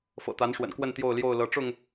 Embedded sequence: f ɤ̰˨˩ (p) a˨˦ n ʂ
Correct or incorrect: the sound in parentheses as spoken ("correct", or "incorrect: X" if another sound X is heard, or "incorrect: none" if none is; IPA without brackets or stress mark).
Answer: incorrect: t̪